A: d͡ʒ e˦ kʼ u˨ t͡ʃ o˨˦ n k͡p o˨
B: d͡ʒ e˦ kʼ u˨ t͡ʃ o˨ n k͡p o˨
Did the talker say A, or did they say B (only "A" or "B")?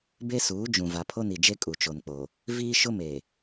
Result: B